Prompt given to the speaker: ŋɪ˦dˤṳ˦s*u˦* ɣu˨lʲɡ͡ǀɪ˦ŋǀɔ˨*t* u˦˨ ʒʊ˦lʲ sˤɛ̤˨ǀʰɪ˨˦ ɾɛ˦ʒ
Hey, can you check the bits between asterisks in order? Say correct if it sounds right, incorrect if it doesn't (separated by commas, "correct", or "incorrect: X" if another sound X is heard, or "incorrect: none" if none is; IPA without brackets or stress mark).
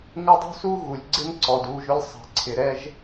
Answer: correct, incorrect: d